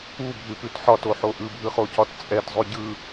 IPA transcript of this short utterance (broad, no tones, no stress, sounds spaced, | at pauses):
u bʱ ʉ p ʉ t ħ ɒ t o ħ o ʔ ɯ bʱ ɯ χ o c ɒ t t͡sʼ ɛ t zˤ ʉ ɟ ɯ